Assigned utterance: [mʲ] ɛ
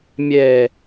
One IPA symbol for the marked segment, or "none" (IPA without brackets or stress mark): mʲ